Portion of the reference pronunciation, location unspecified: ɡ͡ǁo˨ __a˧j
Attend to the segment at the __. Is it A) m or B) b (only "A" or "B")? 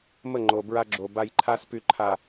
B